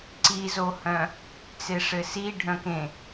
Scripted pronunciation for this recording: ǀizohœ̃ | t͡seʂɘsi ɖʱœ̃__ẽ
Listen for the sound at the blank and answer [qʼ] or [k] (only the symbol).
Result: k